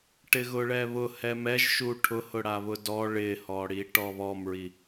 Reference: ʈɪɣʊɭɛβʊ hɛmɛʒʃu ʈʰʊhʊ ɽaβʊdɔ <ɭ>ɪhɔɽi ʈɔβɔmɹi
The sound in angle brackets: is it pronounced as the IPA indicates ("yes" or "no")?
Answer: yes